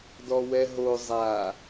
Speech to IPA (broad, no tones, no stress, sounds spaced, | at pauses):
d ɔ w ɛ ɦ o zˤ a